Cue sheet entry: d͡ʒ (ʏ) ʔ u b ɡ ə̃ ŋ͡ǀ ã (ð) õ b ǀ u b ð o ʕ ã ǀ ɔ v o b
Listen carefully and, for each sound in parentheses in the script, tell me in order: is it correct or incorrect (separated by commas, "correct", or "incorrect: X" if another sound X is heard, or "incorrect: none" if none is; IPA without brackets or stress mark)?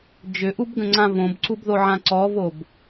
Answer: correct, incorrect: v